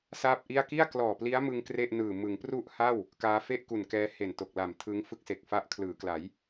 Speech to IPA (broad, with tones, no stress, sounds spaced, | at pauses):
s aː˥˩ p̚ ʔ i˥˩ a̯ k i˥˩ a̯ k l ɔː˨˩ p l i˦˥ a̯ m ɯ˧ ŋ k r e˥˩ ʔ n ɯː˨˩ m ɯ˩˦ ŋ p r u˥˩ ʔ h a˥˩ w | k aː˦˥ f e˥˩ ʔ k u˨˩ n k ɛː˦˥ h e˨˩ n t o˨˩ k̚ l a˨˩ m tʰ ɯ˦˥ ŋ f ɯ˥˩ k̚ s e˨˩ k̚ f a˦˥ ʔ kʰ l ɯː˩˦ k l a˩˦ j